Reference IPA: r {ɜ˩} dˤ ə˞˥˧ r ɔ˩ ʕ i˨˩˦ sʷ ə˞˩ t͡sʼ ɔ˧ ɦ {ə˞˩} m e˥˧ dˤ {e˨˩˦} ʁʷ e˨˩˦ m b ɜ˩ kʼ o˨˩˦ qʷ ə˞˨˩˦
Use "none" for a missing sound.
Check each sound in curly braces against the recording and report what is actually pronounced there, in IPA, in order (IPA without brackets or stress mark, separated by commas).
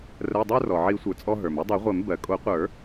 ɜ˩˧˩, ə˞˩, e˨˩˦